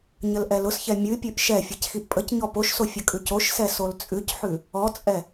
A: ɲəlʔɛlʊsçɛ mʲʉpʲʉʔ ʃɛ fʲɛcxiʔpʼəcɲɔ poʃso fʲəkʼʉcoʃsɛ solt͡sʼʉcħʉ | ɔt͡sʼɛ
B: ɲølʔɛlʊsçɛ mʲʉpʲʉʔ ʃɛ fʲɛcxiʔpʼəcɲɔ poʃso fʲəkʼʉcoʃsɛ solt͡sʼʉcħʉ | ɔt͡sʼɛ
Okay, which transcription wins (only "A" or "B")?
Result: A